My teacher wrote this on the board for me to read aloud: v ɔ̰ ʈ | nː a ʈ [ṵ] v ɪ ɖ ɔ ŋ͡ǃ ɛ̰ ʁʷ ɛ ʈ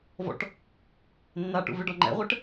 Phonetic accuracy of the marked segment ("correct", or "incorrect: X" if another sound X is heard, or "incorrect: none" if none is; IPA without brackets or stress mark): correct